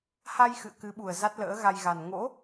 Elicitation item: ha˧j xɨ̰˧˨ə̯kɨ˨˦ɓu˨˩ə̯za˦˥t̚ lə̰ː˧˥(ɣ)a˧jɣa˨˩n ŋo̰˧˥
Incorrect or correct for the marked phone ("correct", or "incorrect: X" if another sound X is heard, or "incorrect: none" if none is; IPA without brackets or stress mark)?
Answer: correct